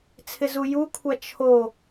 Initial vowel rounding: unrounded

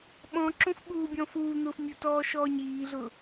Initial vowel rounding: rounded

